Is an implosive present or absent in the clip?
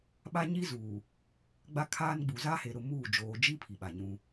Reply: present